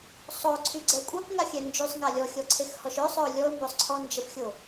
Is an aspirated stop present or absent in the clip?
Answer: present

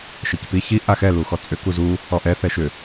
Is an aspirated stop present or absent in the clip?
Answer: absent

